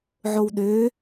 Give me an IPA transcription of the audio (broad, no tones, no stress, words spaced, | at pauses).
ʕowɗøː